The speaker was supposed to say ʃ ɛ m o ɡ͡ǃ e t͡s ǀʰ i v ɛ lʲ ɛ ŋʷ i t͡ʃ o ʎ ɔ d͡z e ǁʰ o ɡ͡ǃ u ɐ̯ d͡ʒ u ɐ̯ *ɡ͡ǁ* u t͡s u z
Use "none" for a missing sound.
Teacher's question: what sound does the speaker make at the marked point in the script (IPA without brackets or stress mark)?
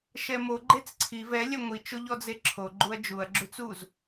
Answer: ɡ͡ǁ